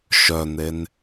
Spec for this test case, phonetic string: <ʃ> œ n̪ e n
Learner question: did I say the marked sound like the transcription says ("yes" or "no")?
yes